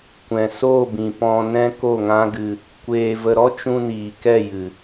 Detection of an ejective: absent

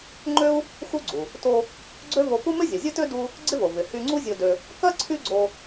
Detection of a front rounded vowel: present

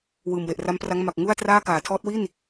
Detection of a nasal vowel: absent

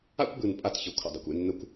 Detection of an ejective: present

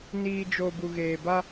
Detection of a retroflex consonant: absent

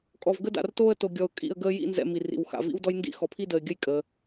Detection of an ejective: present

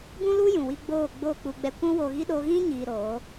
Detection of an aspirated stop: absent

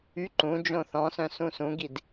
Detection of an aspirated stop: absent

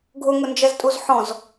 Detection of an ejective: present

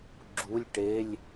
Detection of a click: present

